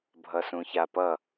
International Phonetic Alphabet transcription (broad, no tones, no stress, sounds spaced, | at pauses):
bʱ ʌ s ũ ç a p ʌ